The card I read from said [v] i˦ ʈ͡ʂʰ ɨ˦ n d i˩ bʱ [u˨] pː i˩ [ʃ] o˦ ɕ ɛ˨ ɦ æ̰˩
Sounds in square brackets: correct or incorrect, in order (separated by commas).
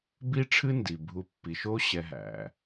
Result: incorrect, correct, correct